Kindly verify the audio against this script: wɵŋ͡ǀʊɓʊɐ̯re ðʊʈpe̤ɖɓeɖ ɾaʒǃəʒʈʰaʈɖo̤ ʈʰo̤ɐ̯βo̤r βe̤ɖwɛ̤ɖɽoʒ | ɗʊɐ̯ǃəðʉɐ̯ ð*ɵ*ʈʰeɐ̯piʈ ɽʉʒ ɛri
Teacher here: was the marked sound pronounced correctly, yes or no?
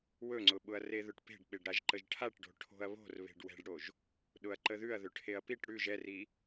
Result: yes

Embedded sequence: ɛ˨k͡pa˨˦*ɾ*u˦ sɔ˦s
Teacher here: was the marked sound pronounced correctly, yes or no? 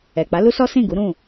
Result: no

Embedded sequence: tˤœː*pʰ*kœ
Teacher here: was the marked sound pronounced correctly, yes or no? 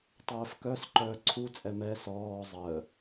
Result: no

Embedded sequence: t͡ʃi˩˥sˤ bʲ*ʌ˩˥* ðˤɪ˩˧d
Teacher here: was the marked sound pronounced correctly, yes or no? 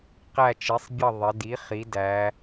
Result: no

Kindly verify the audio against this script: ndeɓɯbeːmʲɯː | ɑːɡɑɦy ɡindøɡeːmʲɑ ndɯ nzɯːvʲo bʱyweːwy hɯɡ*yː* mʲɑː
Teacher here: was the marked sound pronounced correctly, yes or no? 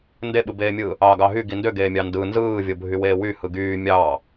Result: yes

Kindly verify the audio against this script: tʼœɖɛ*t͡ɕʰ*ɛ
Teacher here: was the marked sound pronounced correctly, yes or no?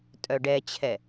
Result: yes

